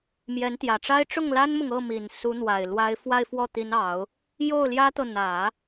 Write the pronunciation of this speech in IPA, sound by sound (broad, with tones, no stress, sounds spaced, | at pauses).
m j ɛ˧˥ n t̪ j ä˨˩ ʈ͡ʂ a˥ ɪ̯ ʈ͡ʂ ʊ˥˩ ŋ l a˥ n m ʊ˨ ŋ ɤ˥˩ m i˨˩ n s u˧˥ n̪ w a˨˩ ɪ̯ l w a˧˥ ɪ̯ f w a˥˧ ɪ̯ f w ɔ˥˩ t̪ i˧˥ n ɑ˨˩˦ ʊ̯ | j o˥˩ ʊ̯ l j ä˥ t̪ ɤ˨ n̪ ä˨˩˦